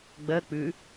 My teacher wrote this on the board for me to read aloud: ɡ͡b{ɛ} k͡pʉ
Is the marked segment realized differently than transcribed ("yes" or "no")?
yes